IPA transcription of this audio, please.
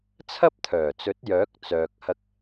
t͡sʰɐ˥p̚t̪ʰœː˨˩t͡sɵ˨˥t̚ jœː˨˥k̚ t͡sœː˨k̚hɐ˧k̚

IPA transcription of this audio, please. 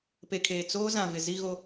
pe˨kʰeː˨ t͡soː˦ zã˨vɪ˨ zi˦ɣo˦

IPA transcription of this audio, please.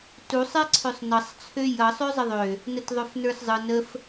tusˤɛǀʰøsˤ nʌsˤt͡sʰø jʌ sˤøzˤəðˤø | nətðˤøfnə˞szˤɯn əf

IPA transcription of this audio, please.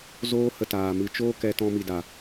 zoː˦hə˧taː˨ mɨ˨t͡ʃoː˦ kɛ˧tɔ̃˧ mi˨da˨

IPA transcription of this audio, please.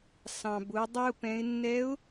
sɑ̃˩bʊ˩˧ dˤɛ˧ʊ̯pɛ̃˩˧ɪ̯nːɛ˧˥ʊ̯

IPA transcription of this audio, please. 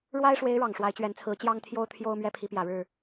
ɻwa˥ɪ̯ʂwe˧˥ɪ̯ ɻɑ˨˩ŋʂwa˧˥ɪ̯t͡ɕɥɛ˧˥nt͡sʰɹ̩˧˥ t͡ɕjɑ˥ŋt̪ʰjo˥ʊ̯t̪ʰjo˥ʊ̯ mɥɛ˥pʰi˧˥pjä˨˩ɻɻ̩˥˩

